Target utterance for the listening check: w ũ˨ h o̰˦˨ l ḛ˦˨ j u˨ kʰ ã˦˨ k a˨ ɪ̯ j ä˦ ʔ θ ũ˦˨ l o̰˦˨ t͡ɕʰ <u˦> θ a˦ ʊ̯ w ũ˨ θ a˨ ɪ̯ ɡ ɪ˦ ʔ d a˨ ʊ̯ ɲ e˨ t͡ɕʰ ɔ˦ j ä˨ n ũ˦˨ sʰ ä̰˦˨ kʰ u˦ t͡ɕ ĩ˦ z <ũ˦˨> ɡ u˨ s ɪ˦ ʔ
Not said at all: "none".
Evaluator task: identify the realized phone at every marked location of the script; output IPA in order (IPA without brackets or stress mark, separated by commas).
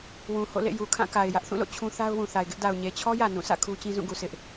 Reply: ũ˦, ũ˦˨